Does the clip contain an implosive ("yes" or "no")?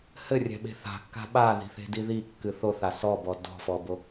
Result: yes